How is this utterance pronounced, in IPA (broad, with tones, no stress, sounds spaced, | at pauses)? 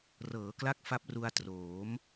r ɤː˩˦ k l a˦˥ k̚ f a˦˥ p̚ r u˧ a̯ t r oː˩˦ m